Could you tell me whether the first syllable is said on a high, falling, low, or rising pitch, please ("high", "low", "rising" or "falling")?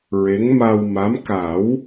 rising